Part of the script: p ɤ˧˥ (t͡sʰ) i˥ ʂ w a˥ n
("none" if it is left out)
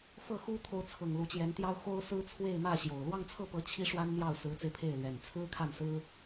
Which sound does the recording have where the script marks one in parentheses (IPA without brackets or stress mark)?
t͡ɕʰ